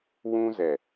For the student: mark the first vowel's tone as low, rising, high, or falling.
high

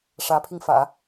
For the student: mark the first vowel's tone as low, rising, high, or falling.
rising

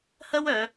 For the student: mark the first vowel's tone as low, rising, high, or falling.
high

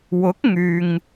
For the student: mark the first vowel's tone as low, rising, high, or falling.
rising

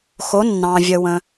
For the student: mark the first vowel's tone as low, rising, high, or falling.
rising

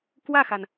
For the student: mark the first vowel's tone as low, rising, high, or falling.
falling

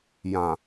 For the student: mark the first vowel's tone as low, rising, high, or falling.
low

